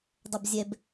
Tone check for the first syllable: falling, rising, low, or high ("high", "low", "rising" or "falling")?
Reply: low